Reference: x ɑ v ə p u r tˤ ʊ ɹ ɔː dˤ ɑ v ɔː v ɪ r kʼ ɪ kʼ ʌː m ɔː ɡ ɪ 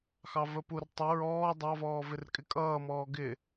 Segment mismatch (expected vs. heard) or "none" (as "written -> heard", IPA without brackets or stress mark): none